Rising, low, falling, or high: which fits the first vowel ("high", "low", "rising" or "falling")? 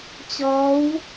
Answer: rising